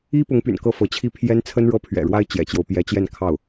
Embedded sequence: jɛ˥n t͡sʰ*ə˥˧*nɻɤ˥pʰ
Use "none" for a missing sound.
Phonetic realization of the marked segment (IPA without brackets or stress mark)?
ə˥